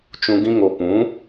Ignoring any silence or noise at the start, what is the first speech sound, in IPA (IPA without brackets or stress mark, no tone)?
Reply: t͡ʃ